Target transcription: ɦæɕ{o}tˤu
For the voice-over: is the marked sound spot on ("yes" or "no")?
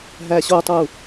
yes